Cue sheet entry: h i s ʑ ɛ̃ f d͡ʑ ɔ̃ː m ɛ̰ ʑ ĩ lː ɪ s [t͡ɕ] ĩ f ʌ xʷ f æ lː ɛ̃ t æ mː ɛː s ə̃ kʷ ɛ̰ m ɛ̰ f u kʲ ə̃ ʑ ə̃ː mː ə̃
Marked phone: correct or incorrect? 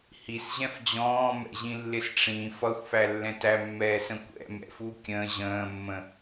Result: incorrect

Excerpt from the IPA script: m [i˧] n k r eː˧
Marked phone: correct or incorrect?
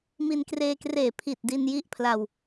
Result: correct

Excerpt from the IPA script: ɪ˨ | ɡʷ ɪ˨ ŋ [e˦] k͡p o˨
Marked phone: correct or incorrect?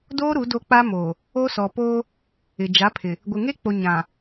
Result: correct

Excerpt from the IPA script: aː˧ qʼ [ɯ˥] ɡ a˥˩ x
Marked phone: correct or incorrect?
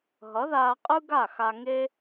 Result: correct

